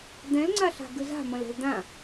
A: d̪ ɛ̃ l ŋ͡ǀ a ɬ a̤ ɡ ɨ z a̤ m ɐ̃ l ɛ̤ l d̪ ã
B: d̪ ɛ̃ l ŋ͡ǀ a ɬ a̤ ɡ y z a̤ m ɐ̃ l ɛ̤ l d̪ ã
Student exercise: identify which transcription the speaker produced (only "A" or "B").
A